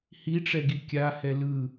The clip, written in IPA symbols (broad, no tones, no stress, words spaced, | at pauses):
hiʈ͡ʂɛɡi kʲahɛ lɯ